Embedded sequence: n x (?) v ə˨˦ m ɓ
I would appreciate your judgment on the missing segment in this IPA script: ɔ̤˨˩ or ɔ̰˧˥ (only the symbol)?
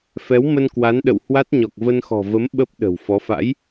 ɔ̤˨˩